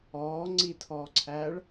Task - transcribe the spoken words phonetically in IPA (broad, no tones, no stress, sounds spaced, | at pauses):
ɔː ŋ͡ǀ i tʰ ɔː ǀʰ æː ɭ